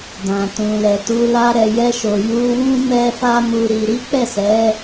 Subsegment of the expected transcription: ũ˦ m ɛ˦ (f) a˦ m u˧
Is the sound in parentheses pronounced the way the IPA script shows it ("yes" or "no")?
yes